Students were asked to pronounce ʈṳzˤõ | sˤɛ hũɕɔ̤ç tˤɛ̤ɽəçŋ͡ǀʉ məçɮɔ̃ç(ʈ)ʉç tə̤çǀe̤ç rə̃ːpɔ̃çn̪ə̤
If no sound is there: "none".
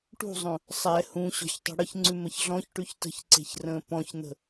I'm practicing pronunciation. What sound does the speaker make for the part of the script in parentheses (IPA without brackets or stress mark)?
ʈ